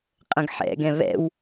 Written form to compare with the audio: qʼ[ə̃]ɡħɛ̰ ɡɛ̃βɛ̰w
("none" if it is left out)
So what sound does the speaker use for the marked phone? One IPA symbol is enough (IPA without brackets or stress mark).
ə̃